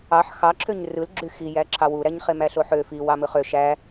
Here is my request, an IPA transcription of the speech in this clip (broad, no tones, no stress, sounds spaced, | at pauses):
ɑ ħ x ɑ ǁʰ ø ɲ r ɯ l ɡ͡ǁ y x i j æ ǁʰ ɑ w u ɾ æ ɲ χ e m æ ɬ o ħ ø f i w ɑ m ɯ χ ø ʃ æ